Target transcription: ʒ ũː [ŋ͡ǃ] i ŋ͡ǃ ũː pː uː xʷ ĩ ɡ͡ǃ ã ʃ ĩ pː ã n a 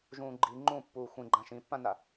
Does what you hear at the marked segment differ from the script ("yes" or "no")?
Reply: yes